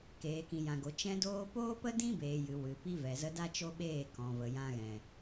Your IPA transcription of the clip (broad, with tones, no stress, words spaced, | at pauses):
keː˨kĩ˨jã˨ɡo˨ t͡ʃɛ̃˧doː˧ poː˦pə˦dĩ˦beː˨ jɨ˨ wɨ˨pi˦vɛ˨zə˦ da˦t͡ʃo˦ɓeː˦˨ kɔ̃˨ və˨jã˧ɣɛ̃˨